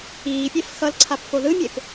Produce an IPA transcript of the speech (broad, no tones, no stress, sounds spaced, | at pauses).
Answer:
iː pʲ e f x ʌ l ǀʰ a p f o ð ɯ mʲ e p